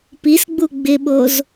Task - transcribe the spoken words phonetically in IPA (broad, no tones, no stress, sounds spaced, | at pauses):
p i s ɡ͡b u ɡ͡b ɪ ɓ o z